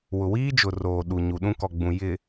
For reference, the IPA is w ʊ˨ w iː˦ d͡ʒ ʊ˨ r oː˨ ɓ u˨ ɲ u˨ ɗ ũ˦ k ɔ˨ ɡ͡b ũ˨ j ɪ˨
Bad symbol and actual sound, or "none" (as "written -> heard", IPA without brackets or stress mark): ɓ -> ɗ